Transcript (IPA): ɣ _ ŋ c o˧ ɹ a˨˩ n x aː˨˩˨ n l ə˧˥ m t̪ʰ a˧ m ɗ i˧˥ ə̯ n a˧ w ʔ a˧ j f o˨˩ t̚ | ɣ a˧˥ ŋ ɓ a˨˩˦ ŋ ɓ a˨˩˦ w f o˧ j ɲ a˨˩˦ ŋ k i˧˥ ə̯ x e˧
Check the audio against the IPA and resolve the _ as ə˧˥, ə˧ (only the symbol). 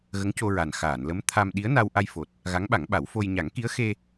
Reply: ə˧˥